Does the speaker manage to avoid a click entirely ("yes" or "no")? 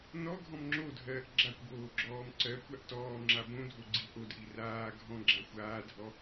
no